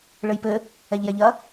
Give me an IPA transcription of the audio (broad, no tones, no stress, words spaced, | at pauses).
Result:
ɭɘjpɘ | ɛʎjɛʎɐ